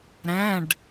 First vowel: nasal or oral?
nasal